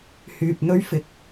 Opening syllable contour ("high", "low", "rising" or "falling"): low